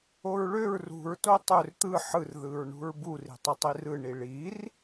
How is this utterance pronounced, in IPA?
o ɹ ɭ ø ɹ r ṳ ɹ t o tˤ ø r t̪ ɯ ħ ɯ r ð ɯ ɹ ɳ ṳ ɹ b u r i̤ tˤ ɯ tˤ i r ɯ ɳ i ɭ i r

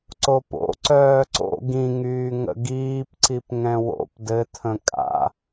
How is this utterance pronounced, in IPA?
ǀ o p o̰ ǀ œː ǀ o̰ ɡ ĩ ŋ yː ŋ ə̰ ɡ iː p ǀ i p ŋ ɛ̃ w o̰ p d ɘ tʰ ə̃ kʼ a̰

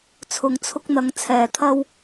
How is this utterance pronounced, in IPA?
t͡sʰ ʊ˨ ŋ t͡sʰ ʊ˧ k̚ n̪ ɐ˨˧ ŋ t͡sʰ ɛː˨ t̪ʰ ɐ˧ w

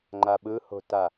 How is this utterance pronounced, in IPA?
ŋ͡ǃ a ɓ ɯ h o̤ t a

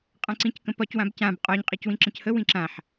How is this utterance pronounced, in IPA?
qʼ ã ǀ ĩ c k ə̃ p ɒ c w ã b c ã b qʼ ɒ ɲ qʼ i c w ĩ ǁ ə̃ c h ə w ĩ ǁ ã ħ

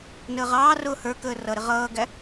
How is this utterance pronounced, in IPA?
n əː ʁ ɑː r ʊː h ə˞ k əː r ʌ ɾ ɪ ʁ ʌː ɡ æ

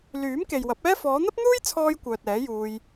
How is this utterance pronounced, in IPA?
l yː˨˥ m k e˨ j w ɐ˨˥ p̚ ɛː˥ f ɔː˨˧ n̪ ɐ˥ p̚ n̪ uː˥ j t͡sʰ ɔː˥ j kʷ œː˨ t̚ ɛː˨˥ j uː˧ j

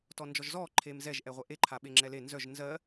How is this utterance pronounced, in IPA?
t ɔ n d͡ʒ ɔ ʒ z ɔ ǃʰ e m z ɛ ʒ ʔ ɛ ʁʷ ɛ ʔ e ǃʰ a ɓ e ŋ͡ǁ ɛ l e n z œ ʒ n z ɜ

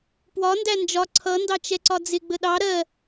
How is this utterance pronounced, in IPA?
p w ɒ n d æ n d͡ʒ ɒ ǀʰ ʌ n d ɑ t͡ʃ ɛ ǀ ɒ d͡z ɪ ɡ͡b ə ɗ ɑ ɾ ɜ

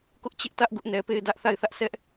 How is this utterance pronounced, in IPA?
k ʊ˦ ʔ t͡ɕ ɪ˦ ʔ t ä˦ ʔ ɡ ʊ˦ ʔ n ɛ˨ p e˦˨ ɪ̯ d ä˦ ʔ θ a˦˨ ɪ̯ θ ä˦ ʔ s ɛ˦ ʔ

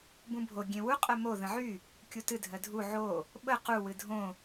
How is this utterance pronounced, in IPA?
b ũ bʱ o ɡʲ ẽ w u qʼ ɜ m o ð ə̃ ʕ y | kʲ u t ɨ dʱ ɜ dʱ u ʕ o | ɓ ə q u w ɨ dʱ õ

